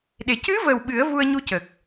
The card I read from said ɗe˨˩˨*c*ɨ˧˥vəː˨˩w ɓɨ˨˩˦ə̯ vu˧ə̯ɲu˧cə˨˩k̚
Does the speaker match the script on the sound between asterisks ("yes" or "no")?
yes